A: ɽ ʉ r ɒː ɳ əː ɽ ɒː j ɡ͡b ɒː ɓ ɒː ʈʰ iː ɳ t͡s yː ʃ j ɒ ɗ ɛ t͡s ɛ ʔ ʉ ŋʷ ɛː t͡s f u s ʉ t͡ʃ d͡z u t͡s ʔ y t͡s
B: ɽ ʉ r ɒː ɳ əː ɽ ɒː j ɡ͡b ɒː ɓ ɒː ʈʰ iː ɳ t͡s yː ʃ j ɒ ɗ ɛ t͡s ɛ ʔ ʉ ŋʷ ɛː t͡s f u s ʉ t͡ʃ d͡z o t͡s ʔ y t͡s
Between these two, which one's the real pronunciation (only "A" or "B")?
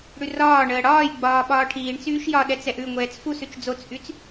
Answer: B